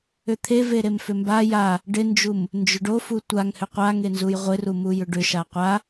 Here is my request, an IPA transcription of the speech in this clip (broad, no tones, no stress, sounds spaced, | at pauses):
ʏ t̪ʰ e v e ɾ e m f ʏ m b a j a | ɖ ɪ n d͡ʒ u m | n d͡ʒ ʏ ɖ o f u tʷ a ŋ h ʏ qʷ a ŋ e n z u j ʁʷ ɪ r u m u j ʏ ɖ ʏ ʃ a qʷ a